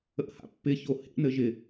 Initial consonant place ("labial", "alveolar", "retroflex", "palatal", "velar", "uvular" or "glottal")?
glottal